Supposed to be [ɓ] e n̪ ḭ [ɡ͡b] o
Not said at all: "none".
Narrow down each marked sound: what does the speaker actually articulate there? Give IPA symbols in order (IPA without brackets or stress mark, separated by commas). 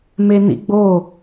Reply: m, ɡ͡b